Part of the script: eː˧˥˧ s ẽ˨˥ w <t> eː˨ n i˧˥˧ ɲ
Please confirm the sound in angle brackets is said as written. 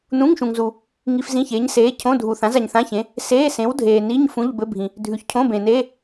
no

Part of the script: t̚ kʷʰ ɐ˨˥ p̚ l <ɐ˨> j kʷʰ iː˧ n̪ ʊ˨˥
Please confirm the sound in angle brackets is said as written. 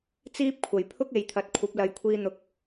yes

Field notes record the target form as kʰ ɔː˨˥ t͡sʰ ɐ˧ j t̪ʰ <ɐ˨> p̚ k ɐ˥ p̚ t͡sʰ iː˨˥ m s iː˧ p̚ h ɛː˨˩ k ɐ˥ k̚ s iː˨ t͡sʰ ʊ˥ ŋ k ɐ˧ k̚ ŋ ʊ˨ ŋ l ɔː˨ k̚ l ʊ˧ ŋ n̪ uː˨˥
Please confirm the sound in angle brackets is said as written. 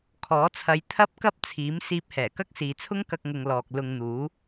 no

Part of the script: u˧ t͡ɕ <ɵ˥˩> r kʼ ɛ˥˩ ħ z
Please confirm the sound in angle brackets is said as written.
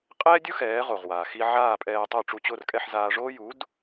no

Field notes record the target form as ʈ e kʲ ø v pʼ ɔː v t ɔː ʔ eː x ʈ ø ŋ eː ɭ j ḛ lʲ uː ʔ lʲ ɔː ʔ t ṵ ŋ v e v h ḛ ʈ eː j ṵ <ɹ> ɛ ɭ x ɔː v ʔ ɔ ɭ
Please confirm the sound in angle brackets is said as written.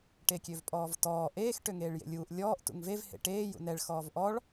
no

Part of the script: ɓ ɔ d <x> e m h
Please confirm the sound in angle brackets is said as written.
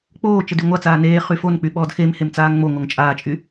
yes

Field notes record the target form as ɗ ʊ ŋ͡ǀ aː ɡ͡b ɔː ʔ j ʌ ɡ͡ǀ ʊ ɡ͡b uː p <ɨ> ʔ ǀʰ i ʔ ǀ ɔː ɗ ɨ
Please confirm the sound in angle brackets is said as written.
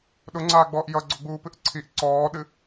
yes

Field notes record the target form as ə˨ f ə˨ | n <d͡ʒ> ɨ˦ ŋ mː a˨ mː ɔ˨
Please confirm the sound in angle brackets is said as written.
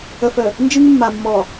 yes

